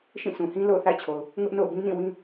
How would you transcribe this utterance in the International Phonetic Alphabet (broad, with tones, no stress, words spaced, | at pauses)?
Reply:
ʃĩ˦˨sʰũ˨hĩ˦ lo̰˦˨ʊ̯θa̰˦˨ɪ̯t͡ɕʰo˨ʊ̯ | ŋʊ˦ʔno̰˦˨ʊ̯ bĩ˦nĩ˦˨ wĩ˦